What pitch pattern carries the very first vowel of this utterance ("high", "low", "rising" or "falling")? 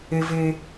low